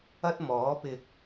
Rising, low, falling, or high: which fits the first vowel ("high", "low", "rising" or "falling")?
high